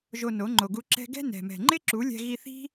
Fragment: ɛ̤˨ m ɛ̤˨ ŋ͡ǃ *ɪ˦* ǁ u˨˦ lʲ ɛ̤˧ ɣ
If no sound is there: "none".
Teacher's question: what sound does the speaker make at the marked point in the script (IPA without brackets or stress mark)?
ɪ˦